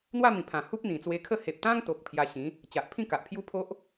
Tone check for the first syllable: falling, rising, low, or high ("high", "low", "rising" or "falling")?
falling